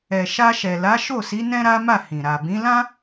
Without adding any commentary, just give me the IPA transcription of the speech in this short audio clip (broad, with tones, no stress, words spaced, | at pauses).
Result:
ɛ˨ʃa˧ ʃɛ˨la˨˦ ʃo˦˨si˨˦ nɛ̃˦ɾa˦ma˦˨ hĩ˨ ɾa˨bĩ˨˦lã˦